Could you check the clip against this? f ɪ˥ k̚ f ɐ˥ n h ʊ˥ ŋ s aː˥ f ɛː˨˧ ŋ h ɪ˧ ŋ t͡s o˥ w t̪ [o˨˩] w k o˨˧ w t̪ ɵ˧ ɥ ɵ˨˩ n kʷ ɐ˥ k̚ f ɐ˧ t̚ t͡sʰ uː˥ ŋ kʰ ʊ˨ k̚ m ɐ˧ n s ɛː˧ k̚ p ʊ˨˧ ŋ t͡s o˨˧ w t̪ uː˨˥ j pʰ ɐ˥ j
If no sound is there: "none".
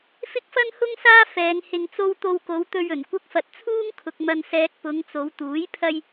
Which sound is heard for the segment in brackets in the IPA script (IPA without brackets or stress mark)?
o˧